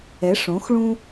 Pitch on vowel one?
rising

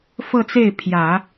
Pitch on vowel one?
falling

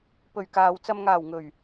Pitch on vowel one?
low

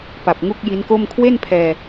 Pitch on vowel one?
low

